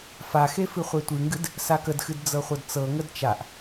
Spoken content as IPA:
f a x e f ɨ χʷ e tʷ ɨ ŋ ɡ ɨ d | s a k ə d x ɨ d d͡z ɤ χʷ ɤ d t͡s ɤ ŋ ə d t͡ʃ a ʔ

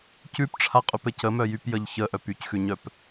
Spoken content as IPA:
c ʉ p ʈ͡ʂʰ a qʼ ʉ p ɘ c ə m œ j y p j ə ʎ ç ə ʔ œ p y c x ʉ ɲ œ p

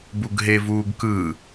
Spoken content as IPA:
b u ɡ ɦ e v uː ɡ k ɯ

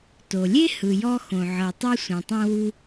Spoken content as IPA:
t o˩ lʲ e˥ h ɯ˩ j ɔ˧ x õ˩ ʕ ɤ˩ tˤ u˧ sʷ ɛ̃˩ tˤ ɛ̃˧ w u˧

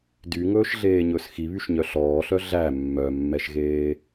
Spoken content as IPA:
d y ŋ ɵː ʃ ɮ eː ɲ ɵ s x i β y ʃ ɲ œ ɬ ɔː ɬ œ ɮ æ mː œ mː ɛ ʃ ɣ eː

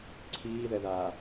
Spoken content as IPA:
ǀʰ iː ð ɛ ð aː

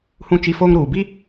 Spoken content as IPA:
h ũ˦ t͡ʃ i˦ f oː˦ ŋ ɾ uː˨ b i˦

